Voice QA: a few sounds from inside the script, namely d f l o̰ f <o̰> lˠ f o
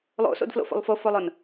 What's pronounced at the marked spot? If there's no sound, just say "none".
o̰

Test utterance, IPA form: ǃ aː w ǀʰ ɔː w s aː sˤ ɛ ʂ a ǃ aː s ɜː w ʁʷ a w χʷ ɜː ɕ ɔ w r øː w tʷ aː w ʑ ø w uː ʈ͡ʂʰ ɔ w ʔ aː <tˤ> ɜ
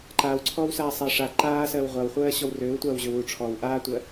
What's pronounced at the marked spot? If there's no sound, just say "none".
tʷ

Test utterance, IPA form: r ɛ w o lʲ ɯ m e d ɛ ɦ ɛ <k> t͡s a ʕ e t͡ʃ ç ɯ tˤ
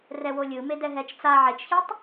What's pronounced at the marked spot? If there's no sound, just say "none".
t͡ʃ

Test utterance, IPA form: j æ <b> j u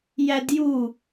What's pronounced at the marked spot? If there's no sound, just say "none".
d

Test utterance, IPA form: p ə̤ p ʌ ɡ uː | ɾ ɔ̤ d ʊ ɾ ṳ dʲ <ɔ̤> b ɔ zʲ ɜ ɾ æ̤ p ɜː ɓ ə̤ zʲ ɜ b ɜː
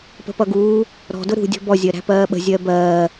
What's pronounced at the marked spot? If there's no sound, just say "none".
ɔ̤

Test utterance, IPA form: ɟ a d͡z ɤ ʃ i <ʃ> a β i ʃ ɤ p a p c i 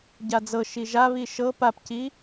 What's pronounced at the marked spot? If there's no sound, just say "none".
ʒ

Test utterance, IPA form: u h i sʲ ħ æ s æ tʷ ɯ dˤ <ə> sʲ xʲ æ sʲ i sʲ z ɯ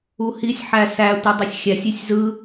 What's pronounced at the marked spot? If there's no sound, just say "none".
ɯ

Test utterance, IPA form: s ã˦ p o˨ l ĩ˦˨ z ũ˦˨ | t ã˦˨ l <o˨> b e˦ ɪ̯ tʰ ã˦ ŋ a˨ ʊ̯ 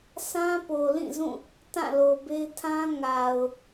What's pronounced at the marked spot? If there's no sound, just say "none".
o˨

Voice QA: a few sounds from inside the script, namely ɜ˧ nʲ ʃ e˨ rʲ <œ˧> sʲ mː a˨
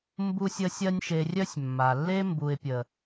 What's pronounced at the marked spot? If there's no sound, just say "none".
œ˧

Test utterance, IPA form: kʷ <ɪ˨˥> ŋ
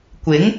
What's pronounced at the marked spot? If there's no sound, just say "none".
ɪ˨˥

